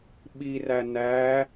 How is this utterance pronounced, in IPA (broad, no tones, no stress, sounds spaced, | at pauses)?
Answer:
ɓ i r æ n æ